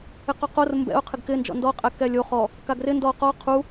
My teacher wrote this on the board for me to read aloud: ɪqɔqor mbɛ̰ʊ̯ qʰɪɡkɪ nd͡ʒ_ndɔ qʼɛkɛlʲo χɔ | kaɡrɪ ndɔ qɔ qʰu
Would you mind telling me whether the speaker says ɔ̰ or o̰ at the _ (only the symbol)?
ɔ̰